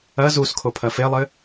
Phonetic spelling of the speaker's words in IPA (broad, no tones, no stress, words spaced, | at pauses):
ɐ zus kʰopʰɐfelˠɘ